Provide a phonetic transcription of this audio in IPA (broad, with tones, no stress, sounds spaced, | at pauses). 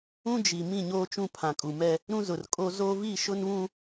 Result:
ũ˦ d͡ʒ i˨ m ĩ˦˨ ɲ oː˦ t͡ʃ ũ˦˨ pʰ ã˨ kʼ u˨ m ɛ˦ | ɾ ũ˦ z ʊ˨ r kʼ o˦ z o˦ v i˦˨ ʃ ʊ˦ n β ũ˦